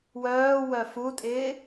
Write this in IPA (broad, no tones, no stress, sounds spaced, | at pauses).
w œː w œ f u tʼ ɪː